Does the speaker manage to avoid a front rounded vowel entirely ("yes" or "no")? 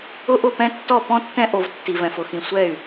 no